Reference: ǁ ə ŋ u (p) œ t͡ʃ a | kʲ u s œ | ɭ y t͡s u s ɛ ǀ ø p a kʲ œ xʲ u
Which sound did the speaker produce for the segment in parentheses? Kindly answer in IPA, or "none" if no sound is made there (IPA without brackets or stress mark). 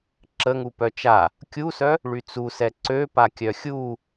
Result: p